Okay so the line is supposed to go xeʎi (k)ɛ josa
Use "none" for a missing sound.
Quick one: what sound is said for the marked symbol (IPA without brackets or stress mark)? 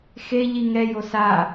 ŋ